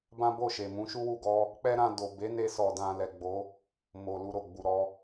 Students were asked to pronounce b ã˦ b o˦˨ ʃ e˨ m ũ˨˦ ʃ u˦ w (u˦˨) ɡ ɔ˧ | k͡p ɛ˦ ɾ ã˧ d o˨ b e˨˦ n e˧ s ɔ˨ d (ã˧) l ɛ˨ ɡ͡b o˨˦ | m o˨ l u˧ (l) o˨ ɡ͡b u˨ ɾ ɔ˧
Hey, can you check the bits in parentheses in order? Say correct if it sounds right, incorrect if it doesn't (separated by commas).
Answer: correct, correct, incorrect